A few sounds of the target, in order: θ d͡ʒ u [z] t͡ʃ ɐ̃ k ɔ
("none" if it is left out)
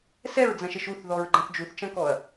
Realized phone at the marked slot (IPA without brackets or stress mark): θ